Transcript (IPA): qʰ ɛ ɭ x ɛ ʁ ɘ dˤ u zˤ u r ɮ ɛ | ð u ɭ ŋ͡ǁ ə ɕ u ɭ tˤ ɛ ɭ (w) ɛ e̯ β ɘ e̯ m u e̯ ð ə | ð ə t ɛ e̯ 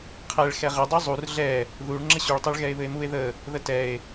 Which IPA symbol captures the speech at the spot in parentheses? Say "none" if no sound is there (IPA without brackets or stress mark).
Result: ɣ